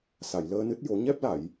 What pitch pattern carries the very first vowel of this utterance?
low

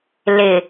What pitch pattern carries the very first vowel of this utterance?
low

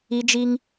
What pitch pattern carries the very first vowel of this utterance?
high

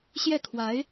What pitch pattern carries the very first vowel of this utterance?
falling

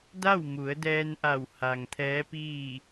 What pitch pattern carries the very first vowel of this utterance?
falling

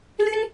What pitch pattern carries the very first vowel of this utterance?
high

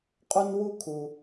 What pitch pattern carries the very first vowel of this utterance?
high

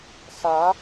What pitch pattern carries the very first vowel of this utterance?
rising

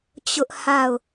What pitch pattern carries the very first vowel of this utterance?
high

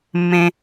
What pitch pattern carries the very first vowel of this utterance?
high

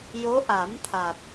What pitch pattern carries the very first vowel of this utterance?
rising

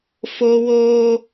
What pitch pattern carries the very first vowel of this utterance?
high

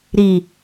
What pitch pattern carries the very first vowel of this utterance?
low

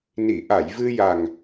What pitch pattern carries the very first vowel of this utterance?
low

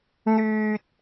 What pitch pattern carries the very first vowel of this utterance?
high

